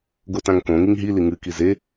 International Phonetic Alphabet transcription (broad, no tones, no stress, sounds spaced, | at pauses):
ɡ o t ã ŋ k õ ŋ i ŋ ɦ i l i ŋ ɨ k i z e